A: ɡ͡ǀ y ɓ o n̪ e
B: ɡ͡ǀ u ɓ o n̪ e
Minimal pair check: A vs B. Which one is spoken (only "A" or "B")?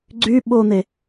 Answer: A